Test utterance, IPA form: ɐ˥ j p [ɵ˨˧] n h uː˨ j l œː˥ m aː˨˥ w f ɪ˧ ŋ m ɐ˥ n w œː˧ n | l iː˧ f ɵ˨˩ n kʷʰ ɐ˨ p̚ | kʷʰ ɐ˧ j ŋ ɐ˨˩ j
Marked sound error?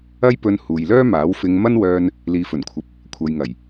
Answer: yes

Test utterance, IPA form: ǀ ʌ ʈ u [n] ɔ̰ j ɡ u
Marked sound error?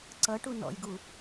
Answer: no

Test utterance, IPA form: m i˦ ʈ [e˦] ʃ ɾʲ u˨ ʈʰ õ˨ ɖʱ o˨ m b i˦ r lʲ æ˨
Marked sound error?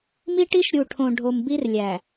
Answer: yes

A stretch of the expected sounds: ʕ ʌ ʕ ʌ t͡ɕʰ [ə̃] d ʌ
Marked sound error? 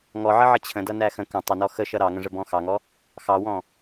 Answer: no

